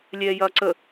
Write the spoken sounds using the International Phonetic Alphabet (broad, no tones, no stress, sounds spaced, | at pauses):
lʲ ɛː j ɐː ǀ ə